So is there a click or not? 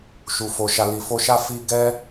no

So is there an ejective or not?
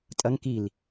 yes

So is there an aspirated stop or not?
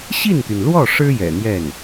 no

